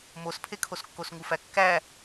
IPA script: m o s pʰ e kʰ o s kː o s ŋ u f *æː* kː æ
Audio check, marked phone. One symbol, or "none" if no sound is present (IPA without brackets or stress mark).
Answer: æ